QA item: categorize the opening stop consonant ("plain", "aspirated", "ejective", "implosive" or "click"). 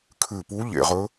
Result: aspirated